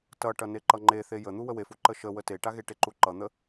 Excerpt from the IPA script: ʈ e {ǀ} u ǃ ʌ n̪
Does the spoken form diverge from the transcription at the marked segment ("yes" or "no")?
yes